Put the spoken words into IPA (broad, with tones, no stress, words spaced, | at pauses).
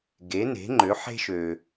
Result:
ɡe˨˥ne̤˨˥ŋ͡ǃø˨˥ ħe̤˦ʃø˨